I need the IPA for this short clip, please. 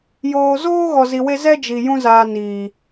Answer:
j oː˧ z oː˦ ɣ ɔ˧ z i˧ w e˦ z ɛ˦ d͡ʒ i˨ j ũ˦ z aː˧ n iː˨

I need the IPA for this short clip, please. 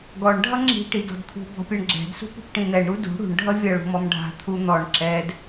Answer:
ɡ ɔ ɳ ɖʱ ʌ ŋ͡ǁ i̤ ʈ i d ɔ̤ d t̪ʰ ṳ b ɔ̤ pʲ ɛ ɳ ɡ͡ǁ ɛ̤ d s ṳ p ṳ p ʈ ĩ n̪ ɛ ɳ ɾ u d ṳ ɽ ṳ ɳ ɖʱ ʌ vʲ ʌ ɭ ṳ m ɔ m ɖʱ a̤ t̪ʰ u n̪ ɔ ɳ ǁ ɛ d

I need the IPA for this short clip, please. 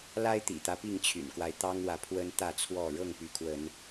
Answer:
l a˦ ɪ̯ t̪ ḭ˨˩ t̪ ä˦ p i˥˨ ŋ t͡ɕʰ y̰˨˩ n k w a˦ ɪ̯ t̪ ɑ˦ ŋ w ä˨ pʰ w ə˦ n t̪ ä˥˨ t͡sʰ w ɔ˥˨ ɻ ɤ˥˨ ŋ p y˨˦ kʰ w ə˨˦ n

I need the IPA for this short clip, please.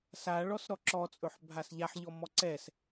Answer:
s a ɭ ɔ s ɾ ɔ ǁ ɔ t͡sʼ ɵ ħ bʱ a s ʎ a ħ ʎ ɔ m ɔ ǀ ɛ s

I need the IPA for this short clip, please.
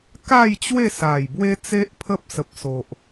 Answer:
k a˥˧ j t͡ɕ w e˥˧ s a˨˩ j b w e˦ t͡s e˦ ʔ pʰ ə˦ p̚ s ə˨ p̚ s o˨ ʔ

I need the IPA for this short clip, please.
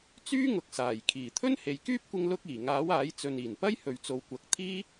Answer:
t͡s yː˥ ŋ ʊ˨ k̚ s aː˨˩ j kʰ iː˨˩ t̪ʰ ɵ˥ n h e˨ j k yː˥ p̚ kʷ ɪ˧ ŋ l ʊ˧ k̚ iː˨˩ ŋ aː˨˥ w aː˨˥ j t͡s ɵ˨ n iː˨˩ n p ɐ˥ j h ɵ˨ ɥ t͡s o˨ w kʷ ɐ˨˥ k̚ t̪ʰ iː˥

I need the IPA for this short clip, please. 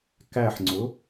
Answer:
k æ ħ ŋ͡ǀ ʊ

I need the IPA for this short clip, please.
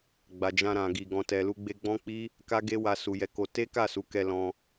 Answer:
ɡ͡b a˨ d͡ʒ ã˧ ɾ ã˨ ɡ i˨ ɡ ɔ̃˨ t ɛ˨ l u˧ ɡ͡b e˧ ɡ͡b ɔ̃˦ k͡p i˦ | k a˦ ɡ e˦ w a˧ s u˨ j ɛ˨˦ k o˧ t e˦ k a˦˨ s u˨˦ k ɛ˧ l ɔ̃˧

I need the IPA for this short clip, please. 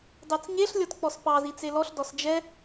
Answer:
d ɑ t͡s ɲ e ɬ lʲ ɔ t k͡p ɔ s p ɑ z i t͡s e l ɔ ɬ d ɔ s d͡ʒ ɛ

